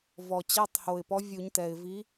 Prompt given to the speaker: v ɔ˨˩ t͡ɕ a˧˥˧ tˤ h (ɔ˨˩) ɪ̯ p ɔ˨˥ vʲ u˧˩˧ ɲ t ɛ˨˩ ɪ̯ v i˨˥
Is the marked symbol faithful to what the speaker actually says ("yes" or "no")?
no